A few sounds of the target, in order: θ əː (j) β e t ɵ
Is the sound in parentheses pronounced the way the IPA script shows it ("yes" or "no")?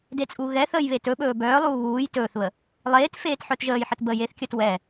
yes